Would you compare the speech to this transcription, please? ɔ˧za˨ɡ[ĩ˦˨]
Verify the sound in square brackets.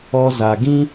incorrect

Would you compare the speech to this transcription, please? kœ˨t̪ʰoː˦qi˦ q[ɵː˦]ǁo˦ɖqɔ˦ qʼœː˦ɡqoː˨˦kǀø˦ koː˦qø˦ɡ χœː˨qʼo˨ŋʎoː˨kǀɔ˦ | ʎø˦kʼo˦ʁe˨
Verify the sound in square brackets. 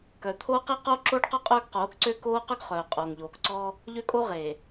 incorrect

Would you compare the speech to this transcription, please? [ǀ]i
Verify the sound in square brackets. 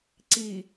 correct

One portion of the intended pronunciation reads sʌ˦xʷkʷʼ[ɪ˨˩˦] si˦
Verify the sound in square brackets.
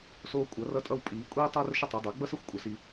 incorrect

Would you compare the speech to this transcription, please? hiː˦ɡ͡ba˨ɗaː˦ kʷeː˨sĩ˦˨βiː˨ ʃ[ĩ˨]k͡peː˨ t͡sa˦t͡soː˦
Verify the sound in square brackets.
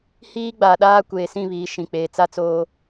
correct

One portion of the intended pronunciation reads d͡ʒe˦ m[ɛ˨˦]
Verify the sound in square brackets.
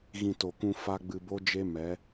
correct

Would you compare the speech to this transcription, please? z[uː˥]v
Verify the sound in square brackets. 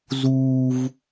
correct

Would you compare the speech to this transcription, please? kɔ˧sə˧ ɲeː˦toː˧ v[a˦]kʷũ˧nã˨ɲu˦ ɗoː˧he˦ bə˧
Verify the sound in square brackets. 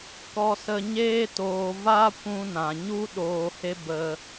correct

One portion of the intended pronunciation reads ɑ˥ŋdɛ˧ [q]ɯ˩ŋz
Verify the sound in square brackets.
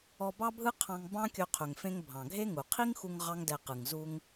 correct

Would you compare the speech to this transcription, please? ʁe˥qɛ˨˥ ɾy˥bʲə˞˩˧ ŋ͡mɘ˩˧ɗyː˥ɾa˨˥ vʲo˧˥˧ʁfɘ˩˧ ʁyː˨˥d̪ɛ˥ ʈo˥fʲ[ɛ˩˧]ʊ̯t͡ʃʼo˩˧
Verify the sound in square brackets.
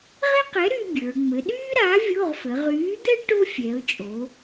correct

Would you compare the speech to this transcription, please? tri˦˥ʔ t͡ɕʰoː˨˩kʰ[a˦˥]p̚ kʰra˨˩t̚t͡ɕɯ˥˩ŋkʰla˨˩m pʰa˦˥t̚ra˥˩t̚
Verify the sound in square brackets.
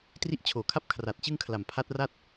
correct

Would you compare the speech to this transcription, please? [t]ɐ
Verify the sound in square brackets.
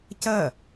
incorrect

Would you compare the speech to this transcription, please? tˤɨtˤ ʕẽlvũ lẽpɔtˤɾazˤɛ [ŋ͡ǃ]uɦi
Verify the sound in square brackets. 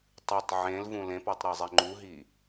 correct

